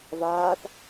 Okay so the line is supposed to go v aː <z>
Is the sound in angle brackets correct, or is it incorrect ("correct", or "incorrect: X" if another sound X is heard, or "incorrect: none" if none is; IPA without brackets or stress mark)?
incorrect: θ